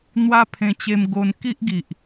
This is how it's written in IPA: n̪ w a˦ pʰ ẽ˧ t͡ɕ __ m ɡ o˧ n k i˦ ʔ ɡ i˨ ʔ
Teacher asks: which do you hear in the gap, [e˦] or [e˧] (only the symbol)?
e˧